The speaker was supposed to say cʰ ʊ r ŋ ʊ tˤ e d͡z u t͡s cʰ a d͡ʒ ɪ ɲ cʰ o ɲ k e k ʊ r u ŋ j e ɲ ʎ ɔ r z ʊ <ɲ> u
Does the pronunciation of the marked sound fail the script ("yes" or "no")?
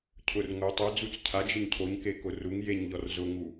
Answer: yes